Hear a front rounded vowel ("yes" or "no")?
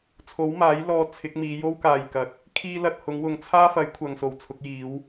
no